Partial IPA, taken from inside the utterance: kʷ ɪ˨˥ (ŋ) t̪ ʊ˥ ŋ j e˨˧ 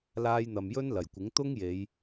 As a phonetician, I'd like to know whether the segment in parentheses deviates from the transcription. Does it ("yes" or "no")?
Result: no